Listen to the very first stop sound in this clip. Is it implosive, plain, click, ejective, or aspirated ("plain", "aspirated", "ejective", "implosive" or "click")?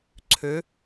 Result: click